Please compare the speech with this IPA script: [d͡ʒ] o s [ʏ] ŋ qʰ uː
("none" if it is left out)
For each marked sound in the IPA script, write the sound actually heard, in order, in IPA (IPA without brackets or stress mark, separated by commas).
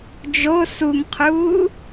d͡ʒ, u